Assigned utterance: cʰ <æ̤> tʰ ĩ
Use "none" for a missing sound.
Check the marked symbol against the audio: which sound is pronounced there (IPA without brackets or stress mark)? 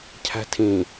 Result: æ̤